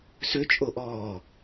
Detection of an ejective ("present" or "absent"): present